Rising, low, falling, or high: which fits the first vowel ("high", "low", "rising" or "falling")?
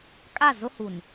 falling